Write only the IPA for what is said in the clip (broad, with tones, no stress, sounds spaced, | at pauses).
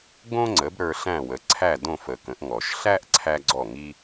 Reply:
ɡ õ˥ ŋ͡ǀ ə˩˥ b ɾ ə˞˧ ɬ æ̃˥˩ w ə˩˥ ǀʰ æ˥˩ d õ˥˩ f ə˩ k ə̃˩˥ ʔ ŋ ɔ˩ ʃ ɬ æ˥ ʔ ǀʰ æ˥ ɡ͡ǀ ɔ˥˩ ŋ i˥